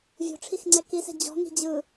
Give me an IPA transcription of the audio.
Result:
vʲ o̤ ʈ͡ʂʰ i x ŋ͡ǀ ɛ k i s ɛ̤ d͡ʑ ɔ̤ ŋ i̤ d͡ʑ ɯ

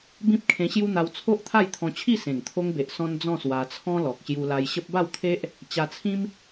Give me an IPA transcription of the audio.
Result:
b ĩ˦ p̚ kʰ ẽ˧ ɕ j u˦ n̪ a˧ w t͡sʰ o˦ ʔ t̪ʰ a˥˧ j t̪ʰ ɔ̃˧ t͡ɕʰ i˥˧ s ẽ˨˩ ŋ t̪ʰ o˧ ŋ b e˨ ʔ s ɔ̃˧ n d͡z ɔ̃˥˧ s w a˧ t͡sʰ ɔ̃˦ l ɔ˨ k̚ ɕ j u˧ l a˧ j ɕ ə˦ p̚ b a˥˧ w t̪ʰ e˦ ʔ | t͡ɕ a˧ t͡sʰ ĩ˦ m

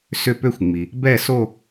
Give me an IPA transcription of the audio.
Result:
s ʏ˥˧ p ø˥˧ xʷ ŋ͡m i˩ | b ɛ˥˧ s o˥˧

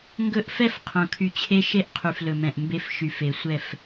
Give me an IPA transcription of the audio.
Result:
ŋ ɡ ɵ˦ ʔ f ɛ˦ f qʰ õ˨ kʰ y˨ t͡ɕʰ e˦ ʃ e˦ ʔ qʰ y˨ f l ɵ˨ m ɛ̃˨ ʔ m b e˦ f ʃ y˨ f e˨ sʷ ɛ˦˨ f

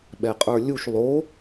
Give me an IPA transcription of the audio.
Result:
ɓ ɛ qʼ ə˞ lʲ u ʃ lˠ o

